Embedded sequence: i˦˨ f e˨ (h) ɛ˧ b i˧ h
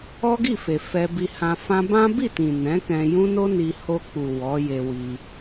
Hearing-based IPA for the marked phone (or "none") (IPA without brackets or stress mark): f